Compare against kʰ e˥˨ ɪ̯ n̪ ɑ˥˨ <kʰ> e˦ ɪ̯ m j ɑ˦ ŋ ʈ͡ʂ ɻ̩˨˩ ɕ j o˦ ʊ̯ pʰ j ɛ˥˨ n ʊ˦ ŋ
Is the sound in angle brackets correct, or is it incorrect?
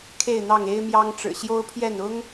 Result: incorrect